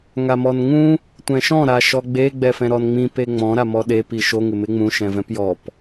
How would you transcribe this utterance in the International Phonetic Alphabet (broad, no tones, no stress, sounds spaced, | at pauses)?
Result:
ŋ a m ɔ n ŋ ũ | tʷ ɛ̃ ʃ ɔ̃ ɾ a ʃ ɔ ɡ͡b e ɡ͡b ɛ f ɛ̃ ɾ ɔ n ŋ͡m ĩ p e ŋ͡m ɔ̃ ɾ a m ɔ ɗ e p i ʃ o ŋ ɪ m ɪ ŋ͡m ũ ʃ ɛ̃ v ɛ̃ p j ɔ p